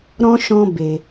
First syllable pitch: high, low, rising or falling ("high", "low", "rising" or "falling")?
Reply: high